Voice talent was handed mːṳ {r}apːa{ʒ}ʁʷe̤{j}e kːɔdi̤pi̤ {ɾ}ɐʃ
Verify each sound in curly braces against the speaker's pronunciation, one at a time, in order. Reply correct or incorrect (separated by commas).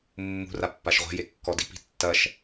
correct, incorrect, correct, incorrect